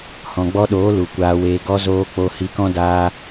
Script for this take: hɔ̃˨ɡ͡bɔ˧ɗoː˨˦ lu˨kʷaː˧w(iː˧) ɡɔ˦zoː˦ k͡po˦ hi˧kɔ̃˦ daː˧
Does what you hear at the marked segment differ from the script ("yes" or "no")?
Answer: yes